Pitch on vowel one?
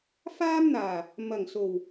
high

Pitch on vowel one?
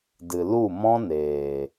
low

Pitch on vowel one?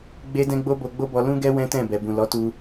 high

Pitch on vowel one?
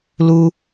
high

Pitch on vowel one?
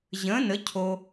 rising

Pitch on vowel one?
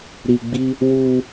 low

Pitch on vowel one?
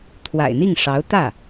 low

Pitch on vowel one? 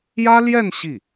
high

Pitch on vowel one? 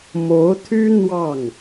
rising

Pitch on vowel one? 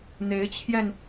rising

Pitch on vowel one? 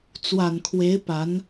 low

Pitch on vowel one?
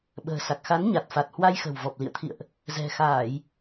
low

